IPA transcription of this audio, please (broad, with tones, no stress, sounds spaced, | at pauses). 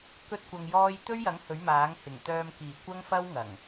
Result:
k ɵ˥ t̚ kʷ ɐ˧ ŋ j ɔː˥ j t̪ ɵ˥ ɥ j ɐ˨˥ ŋ h ɵ˨˥ ɥ m aː˨˥ ŋ h ɪ˨˩ ŋ t̪ œː˨ m k iː˨˩ kʷ ɐ˥ ŋ f ɐ˥ w ŋ ɐ˨˩ ŋ